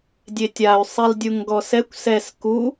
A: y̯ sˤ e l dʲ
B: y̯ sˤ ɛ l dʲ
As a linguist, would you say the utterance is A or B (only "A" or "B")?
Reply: A